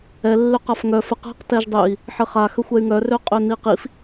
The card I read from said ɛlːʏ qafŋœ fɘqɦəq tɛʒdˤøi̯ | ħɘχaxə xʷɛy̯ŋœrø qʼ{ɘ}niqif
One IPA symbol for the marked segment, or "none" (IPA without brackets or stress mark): ø